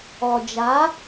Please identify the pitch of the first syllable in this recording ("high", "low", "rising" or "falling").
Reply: low